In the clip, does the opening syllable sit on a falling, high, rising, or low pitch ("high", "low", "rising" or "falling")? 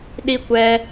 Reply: high